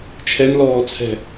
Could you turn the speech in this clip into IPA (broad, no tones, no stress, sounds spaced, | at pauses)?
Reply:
t͡ʃʰ ɛ n l ɔː t͡sʰ ɛ̤